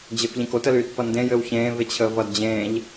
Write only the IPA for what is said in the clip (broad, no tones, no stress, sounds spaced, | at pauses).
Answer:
d͡ʑ e f ʎ ẽ k o t ə l yː t p ʌ n d ẽ j ɘ w ç ẽː v e t͡ɕʰ əː v ʌ d d͡ʑ ẽː ʎ